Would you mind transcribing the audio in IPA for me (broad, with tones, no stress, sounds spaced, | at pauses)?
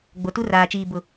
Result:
ɡ͡b o˨ t u˦ r aː˨ t͡ʃ iː˨ b ʊ˨